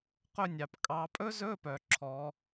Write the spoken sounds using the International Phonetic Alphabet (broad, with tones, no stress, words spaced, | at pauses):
qɵ˦˨nʲɑ˨p kʼɑ˨˦pʼɵ˦˥zɵ˧˥˧pœ˨ ǁʰɔ˨˦